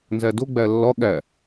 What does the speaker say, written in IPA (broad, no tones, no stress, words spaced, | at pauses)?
nzædo ɡ͡bælːɒ ɠæ